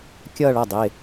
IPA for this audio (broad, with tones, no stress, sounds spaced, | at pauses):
kʲ ʌː˥˧ ɭ ʌ˩˧˩ dˤ ɪː˩˧˩